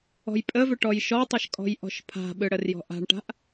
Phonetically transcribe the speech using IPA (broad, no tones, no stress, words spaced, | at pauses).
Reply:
ɔ̤jpʼəvʏ ʈɔjʃɔtˤəʃ kʼɔ̤jʔɔ̤ʃpʰa̤ɓɯ ɽərjɔ̤ʔa̤ɳʈa̤ʔ